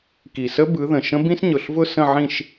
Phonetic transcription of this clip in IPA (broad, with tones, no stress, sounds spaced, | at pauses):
k i˨˩ s ə˦˥ b ɯ˨˦ ð ə̃˨˩ ʃ ə̃˦˥ b ĩ˦˥ s ɲ ʊ˨˩ ɬ v ʊ˥˧ s ə̃˥˧ ʕ ĩ˥˧ ʃ